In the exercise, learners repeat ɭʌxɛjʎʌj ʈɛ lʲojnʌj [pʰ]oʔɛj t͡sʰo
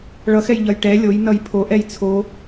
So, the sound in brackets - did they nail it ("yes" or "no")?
yes